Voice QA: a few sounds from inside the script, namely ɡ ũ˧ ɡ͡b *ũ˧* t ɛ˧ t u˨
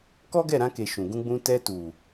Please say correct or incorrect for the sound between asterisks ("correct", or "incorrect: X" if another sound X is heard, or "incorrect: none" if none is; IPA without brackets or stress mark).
correct